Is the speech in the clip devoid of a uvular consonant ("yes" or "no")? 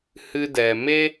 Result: yes